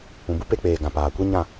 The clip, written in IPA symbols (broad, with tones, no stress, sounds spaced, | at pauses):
ũ˨ b u˦ p e˧ k͡p eː˨ ɡ ã˨ p aː˨ kʷ i˦ ɲ ã˦˨